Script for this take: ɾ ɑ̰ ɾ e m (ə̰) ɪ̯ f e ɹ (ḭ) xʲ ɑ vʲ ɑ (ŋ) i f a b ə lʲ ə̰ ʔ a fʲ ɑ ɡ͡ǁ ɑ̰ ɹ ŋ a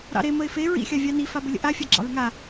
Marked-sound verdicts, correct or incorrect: incorrect: ə, correct, incorrect: n

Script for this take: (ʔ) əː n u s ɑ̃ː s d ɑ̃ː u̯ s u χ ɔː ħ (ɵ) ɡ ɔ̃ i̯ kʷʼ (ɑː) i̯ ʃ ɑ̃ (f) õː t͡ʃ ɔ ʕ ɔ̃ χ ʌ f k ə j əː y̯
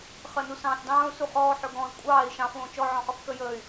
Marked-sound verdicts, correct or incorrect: incorrect: χ, correct, correct, correct

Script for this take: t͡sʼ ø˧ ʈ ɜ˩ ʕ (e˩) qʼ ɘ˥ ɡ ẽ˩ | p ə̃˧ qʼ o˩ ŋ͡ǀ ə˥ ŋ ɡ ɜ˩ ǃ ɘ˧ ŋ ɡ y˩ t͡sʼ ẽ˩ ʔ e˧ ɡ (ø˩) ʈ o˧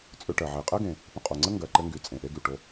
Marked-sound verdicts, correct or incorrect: correct, incorrect: y˩

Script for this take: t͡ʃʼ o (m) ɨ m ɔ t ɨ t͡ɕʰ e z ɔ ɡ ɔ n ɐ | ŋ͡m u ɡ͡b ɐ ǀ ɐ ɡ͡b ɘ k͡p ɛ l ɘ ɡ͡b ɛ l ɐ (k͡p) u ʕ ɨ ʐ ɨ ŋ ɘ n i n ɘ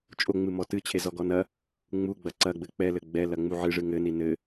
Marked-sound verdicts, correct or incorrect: incorrect: ŋ͡m, incorrect: ŋ͡m

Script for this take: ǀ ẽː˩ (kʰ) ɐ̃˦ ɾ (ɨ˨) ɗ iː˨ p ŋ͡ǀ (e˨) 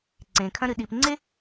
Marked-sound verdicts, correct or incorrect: correct, correct, incorrect: e˥

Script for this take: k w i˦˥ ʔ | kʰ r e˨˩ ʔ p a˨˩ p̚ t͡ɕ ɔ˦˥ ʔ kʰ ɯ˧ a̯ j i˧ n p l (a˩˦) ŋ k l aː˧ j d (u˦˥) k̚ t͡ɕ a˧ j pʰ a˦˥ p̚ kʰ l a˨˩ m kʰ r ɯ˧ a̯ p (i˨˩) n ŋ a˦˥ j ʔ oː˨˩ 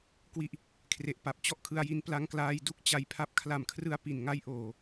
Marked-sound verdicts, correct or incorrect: incorrect: a˧, incorrect: u˥˩, correct

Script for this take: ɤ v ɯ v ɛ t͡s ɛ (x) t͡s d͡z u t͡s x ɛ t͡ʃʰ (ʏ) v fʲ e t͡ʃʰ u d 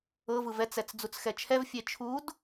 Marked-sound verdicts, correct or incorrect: incorrect: none, incorrect: ɛ

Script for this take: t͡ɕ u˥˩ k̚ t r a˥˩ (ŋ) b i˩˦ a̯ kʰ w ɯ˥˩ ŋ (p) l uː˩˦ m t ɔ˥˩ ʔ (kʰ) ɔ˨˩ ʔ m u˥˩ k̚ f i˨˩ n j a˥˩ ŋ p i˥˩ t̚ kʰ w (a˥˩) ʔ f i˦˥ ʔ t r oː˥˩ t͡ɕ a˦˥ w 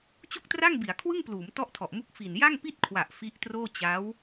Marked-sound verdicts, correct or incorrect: correct, correct, incorrect: tʰ, incorrect: a˨˩

